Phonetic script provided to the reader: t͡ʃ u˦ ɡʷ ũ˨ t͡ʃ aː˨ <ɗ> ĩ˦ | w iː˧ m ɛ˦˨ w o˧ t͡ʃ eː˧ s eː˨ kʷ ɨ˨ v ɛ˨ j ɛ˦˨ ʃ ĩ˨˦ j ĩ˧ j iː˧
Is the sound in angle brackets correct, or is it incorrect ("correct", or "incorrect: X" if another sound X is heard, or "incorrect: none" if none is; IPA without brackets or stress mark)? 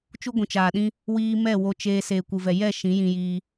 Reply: correct